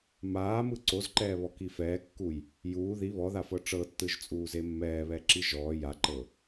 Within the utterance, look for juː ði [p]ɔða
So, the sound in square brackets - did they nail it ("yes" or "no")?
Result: no